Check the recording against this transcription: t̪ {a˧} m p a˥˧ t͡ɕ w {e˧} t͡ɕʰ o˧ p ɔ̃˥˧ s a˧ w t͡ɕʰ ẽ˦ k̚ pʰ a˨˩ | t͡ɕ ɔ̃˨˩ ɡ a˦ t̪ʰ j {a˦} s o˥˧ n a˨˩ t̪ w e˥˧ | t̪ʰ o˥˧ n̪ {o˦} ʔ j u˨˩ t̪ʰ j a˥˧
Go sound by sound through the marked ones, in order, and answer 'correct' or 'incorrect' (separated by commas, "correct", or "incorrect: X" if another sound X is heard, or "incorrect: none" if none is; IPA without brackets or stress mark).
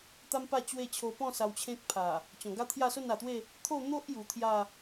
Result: incorrect: a˦, incorrect: e˥˧, incorrect: a˥˧, correct